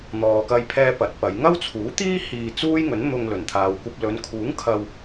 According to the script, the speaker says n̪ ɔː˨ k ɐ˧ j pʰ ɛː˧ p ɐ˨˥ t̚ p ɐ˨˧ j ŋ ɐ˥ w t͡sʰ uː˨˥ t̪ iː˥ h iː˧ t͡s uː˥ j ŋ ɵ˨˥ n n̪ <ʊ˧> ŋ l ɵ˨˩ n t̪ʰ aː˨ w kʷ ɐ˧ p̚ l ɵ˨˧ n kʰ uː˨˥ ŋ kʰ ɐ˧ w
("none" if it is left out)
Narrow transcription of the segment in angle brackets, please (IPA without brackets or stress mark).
ʊ˧